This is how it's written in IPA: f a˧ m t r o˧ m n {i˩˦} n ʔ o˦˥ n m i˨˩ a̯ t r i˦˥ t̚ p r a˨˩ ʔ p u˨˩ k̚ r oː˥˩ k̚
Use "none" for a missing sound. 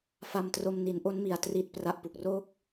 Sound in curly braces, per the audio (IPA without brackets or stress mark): i˩˦